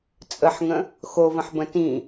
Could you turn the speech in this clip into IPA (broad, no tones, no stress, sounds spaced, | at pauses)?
t͡sʼ ə ħ ŋ ə̃ | x o v ə̃ ħ b ə̃ t ĩ